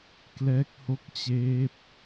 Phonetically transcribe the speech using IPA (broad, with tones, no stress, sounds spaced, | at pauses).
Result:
k l ɛː˦˥ k̚ h o˦˥ k̚ t͡ɕ eː˦˥ p̚